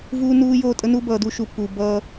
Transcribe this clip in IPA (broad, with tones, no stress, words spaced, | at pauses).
vuː˦nuː˦ joː˦tʼə˦nu˦ bʌː˨du˦ʃu˨ pu˨bʌː˦